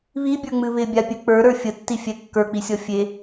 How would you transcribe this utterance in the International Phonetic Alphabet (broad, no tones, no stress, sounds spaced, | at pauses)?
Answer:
β i bʲ ə˞ ŋ͡m ɨ β ɪ bʲ a pʲ ɨ k͡p ə˞ ɾ ə˞ fʲ ə tː i fʲ ɛ kː ə˞ k͡p i sʲ ɔ fʲ e